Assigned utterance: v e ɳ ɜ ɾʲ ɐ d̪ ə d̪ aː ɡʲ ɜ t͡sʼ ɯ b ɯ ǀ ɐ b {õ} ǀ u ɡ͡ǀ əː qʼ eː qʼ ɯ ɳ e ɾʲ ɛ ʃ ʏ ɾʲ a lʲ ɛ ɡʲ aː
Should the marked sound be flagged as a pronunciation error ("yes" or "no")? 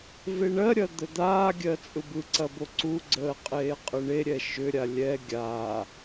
yes